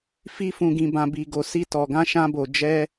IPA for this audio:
fi˧fũ˨ ɡĩ˨bã˨ bi˨ ɡo˨si˧ tɔ˨ɡã˧ ʃã˧bo˨ d͡ʒɛ˧

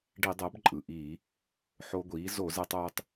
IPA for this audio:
ɖi˧˩˧dˤəː˩˥b ǃʼɯ˩ʔiː˧˩˧ | ħo˧ɡʷiː˩˥ zo˧˩˧zɛ˧tˤoː˧tˤ

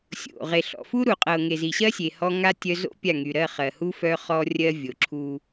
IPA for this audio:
sʲo̰˨ ʁe˨ɬɔ̰˨fu˦ ɾu˨qʼɤ˨ ŋe˨zi˨ɕɜ˦ sʲe˨hɔ˦ ŋa˦ tʲœ˦ zo̰˦ pʲa˦˨ŋy˨ ɾɜ˦˨χɜ˨hu˦ fœ˦χɔ˦ rʲɜ˦vʲo˨ǁʰu˦

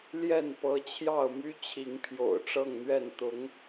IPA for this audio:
ljɛ˥˨npɤ˨˦t͡ɕʰjɑ˥˨ʊ̯my˦ t͡ɕʰi˨˦ŋpʰjo̰˨˩ʊ̯ʈ͡ʂɤ˥˨ŋn̪ɥɛ˥˨n t̪ʊ˨˦ŋ

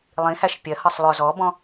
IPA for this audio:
lˠĩhæʃ pʲɜhʌsˤ lˠʊ zɔbɔ̃

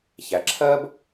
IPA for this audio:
çæ˩ǁʰɜ˥b

